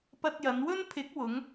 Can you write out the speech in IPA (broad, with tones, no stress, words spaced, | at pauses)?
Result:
pɐ˧t̚jɐ˨˧nwɵ˥n pʰɪ˨˥k̚wʊ˨˧ŋ